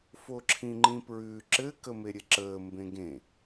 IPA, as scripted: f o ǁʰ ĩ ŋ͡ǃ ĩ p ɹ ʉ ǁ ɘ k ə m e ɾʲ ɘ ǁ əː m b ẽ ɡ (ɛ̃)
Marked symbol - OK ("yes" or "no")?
no